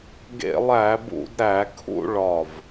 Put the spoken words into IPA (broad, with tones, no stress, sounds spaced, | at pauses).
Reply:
ɡ ḛ˧˩˧ lˠ æ˧˩˧ b ṵ˧˩˧ d ɾ æ˧˩˧ kʰ ṵ˥˧ ɭ ɒ˧˩ v